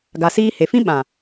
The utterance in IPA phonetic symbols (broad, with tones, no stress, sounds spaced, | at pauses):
ɡ a˨ s iː˧ h e˨ f ĩ˦ ɓ ã˨